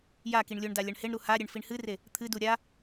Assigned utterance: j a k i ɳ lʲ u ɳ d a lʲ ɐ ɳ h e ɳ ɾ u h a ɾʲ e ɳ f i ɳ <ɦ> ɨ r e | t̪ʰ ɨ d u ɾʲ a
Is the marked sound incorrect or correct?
incorrect: h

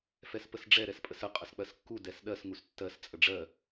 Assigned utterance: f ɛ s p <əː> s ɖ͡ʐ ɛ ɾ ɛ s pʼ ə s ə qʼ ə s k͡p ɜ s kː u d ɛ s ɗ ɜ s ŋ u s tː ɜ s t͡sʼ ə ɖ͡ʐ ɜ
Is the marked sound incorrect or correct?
incorrect: ə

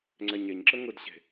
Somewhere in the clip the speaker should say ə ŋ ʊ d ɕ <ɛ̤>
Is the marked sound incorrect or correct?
incorrect: e̤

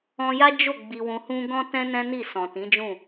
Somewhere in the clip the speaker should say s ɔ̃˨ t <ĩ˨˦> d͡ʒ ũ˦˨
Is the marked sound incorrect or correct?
correct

